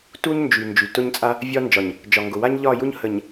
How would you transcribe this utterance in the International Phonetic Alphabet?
t u˦ ɲ n d͡ʒ y˨ n d͡ʒ y˨ t ʊ˦ ɲ t͡sʼ a˦ | vʲ ɒ˦ n d͡ʒ ɒ˨ ɲ | d͡ʒ ɒ˨ ŋ ɡ ʊ˨ w a˦ ɲ ʎ ɒ˦˨ j u˦ ɲ h ə˨ ɲ

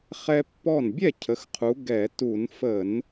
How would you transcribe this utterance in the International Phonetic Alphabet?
χ ɛ˦ pː ɔ˥˩ n bʲ ɛ˥˩ cʰ ə˩˧ x qʰ u˩˧ ɡ ɛ˧˩˧ t u˧˩˧ n f ə˧˩˧ n

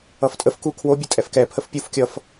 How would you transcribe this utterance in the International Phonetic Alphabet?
ʌ f tʼ ə f k u kʰ w o bʲ ə tʼ ɛ f k ɛ pʰ ə f pʲ u f kʲ ʌ f

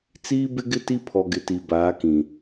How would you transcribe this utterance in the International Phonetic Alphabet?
t͡s iː˦ b ɪ˦ ɡ ɪ˦ t i˦ pʰ ɔ˨ ɡ ɪ˨ t i˨ b aː˨˦ k ĩ˨

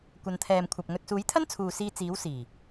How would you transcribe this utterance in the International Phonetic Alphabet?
kʷ ɐ˨˧ n t̪ʰ ɛː˨ m kʷʰ ɐ˨ p̚ ŋ ɵ˧ t̚ s uː˨˥ j t̪ʰ ɐ˥ n t͡sʰ uː˨ s iː˧ t͡s iː˨˥ w s iː˨˩

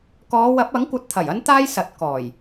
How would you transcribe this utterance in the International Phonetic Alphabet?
k ɔː˨˧ w ɐ˨˥ p̚ ɐ˨˥ ŋ kʷ ɐ˨˥ t̚ t̪ʰ ɐ˨˩ j ɐ˥ n t̪ aː˥ j s ɐ˨ t̚ k ɔː˨˩ j

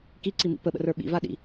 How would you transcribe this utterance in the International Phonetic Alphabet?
k i ǀ i m ḭ p ə ɓ ə̰ r ə˞ ɓ ḭ v a ɗ ḭ

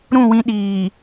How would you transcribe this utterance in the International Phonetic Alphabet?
ɾ ũ˦˨ w ĩ˦ ɗ iː˨

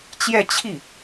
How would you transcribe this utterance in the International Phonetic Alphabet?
t͡ɕ j ɛ˥˧ t͡ɕʰ i˥˩

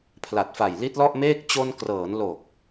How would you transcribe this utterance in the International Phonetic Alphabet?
pʰ l a˨˩ t̚ f a˨˩ j l i˦˥ t̚ l ɔ˥˩ ʔ m eː˥˩ k̚ t͡ɕ o˧ n k r ɤː˩˦ n l o˨˩ k̚

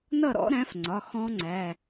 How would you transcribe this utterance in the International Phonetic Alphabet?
n ʌ˥˨ ɾ ɔ̰˨˥ ɾ æ̃˨˥ f ŋ͡ǀ ɒ˩˧˩ x ɔ̃˦˥ ŋ͡ǀ æ˩˧˩

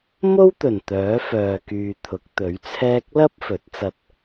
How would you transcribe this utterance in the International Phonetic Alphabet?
m o˥ w t̪ ɵ˨˩ n t̪ œː˨˥ f œː˨ k yː˨ t̪ʰ ʊ˨˥ k̚ t̪ ɵ˨˥ ɥ t͡sʰ ɛː˥ k̚ l ɐ˥ p̚ f ɵ˨˥ t̚ t͡s ɐ˧ t̚

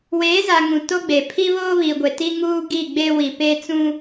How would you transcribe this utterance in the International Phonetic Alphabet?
w eː˨˦ z a˨ ŋ ũ˨ t o˦ ɡ͡b e˨ pʰ i˦ β oː˦ β i˨ ɡʷ e˨ t i˦ ŋ uː˦ ɡ i˦˨ ɡ͡b e˦ w i˨ p e˦ t͡s ũ˦

